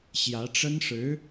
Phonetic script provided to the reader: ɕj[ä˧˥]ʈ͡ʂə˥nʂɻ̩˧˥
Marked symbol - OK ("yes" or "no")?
yes